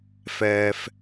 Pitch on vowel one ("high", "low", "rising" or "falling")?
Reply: low